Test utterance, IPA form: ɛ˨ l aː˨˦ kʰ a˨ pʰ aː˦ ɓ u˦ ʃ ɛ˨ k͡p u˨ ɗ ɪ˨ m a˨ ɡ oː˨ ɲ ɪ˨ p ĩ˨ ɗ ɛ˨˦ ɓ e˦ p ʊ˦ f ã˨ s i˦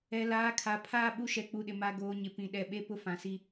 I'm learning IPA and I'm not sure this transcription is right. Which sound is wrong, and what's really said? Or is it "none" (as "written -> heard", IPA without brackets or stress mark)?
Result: none